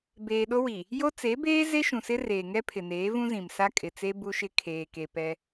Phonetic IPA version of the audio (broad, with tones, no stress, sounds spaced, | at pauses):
b eː˨ ɗ o˦ w i˨ | j o˦ t͡s e˨˦ b eː˦ z e˦ ʃ ũ˨ s ɪ˦ r eː˨ ŋ ɛ˦ pʰ ɪ˨ n eː˨˦ v ũ˦ z ĩ˨ m s a˦ kʼ ɪ˨ t͡s e˦ b u˦ ʃ ɪ˦ kʰ eː˨ k e˨ p ɛ˦